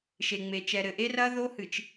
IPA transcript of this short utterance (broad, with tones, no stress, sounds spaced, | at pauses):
ʃ e˨ ŋ͡m e˨ t͡ʃ ɛ˨ ɾ ɘ˨ ʔ e˦ r ɐ˦ ð o˦ h ɨ˨ t͡ʃ